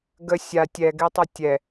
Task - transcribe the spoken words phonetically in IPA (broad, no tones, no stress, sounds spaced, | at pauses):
ɡ ə sʲ a tʲ ɛ ɡ e tˤ ɐ tʲ ɛ